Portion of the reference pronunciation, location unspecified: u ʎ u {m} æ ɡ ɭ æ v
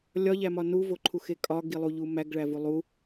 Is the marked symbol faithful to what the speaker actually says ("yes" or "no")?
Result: yes